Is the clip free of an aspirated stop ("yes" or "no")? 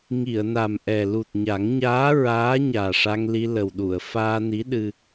yes